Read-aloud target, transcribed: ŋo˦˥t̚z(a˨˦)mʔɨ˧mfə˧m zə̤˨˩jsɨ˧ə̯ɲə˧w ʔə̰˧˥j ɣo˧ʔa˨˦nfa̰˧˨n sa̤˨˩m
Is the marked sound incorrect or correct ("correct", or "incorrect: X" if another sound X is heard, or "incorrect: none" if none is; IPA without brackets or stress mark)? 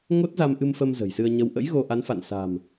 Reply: incorrect: a˧